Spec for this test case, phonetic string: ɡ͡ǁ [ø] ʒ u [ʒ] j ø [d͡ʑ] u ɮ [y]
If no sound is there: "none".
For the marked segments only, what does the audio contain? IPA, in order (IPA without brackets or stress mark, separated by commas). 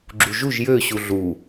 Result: u, ʒ, ɕ, u